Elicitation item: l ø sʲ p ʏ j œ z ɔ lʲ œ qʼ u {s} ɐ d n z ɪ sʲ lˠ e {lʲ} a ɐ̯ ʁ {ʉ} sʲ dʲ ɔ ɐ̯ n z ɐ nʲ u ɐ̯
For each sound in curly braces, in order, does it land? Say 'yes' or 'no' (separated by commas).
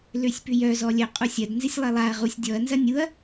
no, no, no